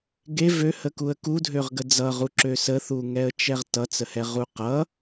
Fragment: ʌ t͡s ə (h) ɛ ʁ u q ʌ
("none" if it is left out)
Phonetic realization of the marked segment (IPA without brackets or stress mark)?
h